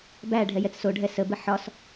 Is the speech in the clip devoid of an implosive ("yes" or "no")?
yes